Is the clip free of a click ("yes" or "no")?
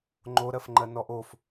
no